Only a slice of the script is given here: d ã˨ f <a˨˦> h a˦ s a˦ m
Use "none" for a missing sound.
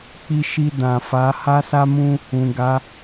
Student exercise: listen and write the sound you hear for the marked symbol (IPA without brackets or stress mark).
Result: a˨˦